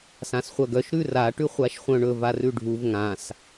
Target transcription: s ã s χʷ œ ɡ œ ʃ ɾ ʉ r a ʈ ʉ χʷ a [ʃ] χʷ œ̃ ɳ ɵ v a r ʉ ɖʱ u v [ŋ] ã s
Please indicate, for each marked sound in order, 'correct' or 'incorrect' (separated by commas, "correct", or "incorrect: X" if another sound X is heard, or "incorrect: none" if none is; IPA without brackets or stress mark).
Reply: correct, correct